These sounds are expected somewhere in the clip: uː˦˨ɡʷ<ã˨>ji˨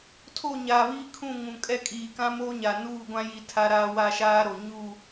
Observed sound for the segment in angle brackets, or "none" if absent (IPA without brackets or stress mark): ã˦